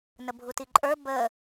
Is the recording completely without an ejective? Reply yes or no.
no